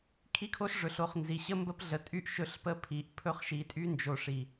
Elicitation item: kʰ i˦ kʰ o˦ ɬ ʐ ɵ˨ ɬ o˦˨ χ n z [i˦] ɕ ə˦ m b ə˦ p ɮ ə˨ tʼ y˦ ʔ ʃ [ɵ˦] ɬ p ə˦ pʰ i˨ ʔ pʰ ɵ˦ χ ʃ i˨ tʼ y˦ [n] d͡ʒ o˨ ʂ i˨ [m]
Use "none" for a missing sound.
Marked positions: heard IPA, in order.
i˨, ɵ˦, n, none

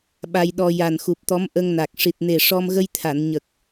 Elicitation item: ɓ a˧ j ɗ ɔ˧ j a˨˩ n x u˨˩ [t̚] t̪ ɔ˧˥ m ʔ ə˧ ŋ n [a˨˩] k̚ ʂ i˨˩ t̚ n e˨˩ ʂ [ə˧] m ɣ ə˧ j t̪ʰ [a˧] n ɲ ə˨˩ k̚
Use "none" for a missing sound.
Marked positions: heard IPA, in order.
p̚, a˨˩, ɔ˧, a˨˩˨

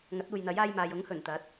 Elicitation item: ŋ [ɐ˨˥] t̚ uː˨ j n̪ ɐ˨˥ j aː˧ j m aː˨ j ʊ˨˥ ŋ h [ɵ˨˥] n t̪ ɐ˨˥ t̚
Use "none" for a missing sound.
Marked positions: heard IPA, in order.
ɐ˨˥, ɵ˨˩

